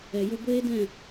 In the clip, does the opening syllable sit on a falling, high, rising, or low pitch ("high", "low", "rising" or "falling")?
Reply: low